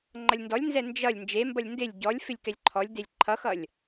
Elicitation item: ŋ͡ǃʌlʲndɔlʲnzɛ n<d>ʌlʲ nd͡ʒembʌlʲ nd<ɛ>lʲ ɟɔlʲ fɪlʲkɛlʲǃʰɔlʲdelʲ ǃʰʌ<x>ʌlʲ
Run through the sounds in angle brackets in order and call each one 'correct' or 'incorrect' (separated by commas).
incorrect, incorrect, correct